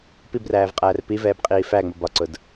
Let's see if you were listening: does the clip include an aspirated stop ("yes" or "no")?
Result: no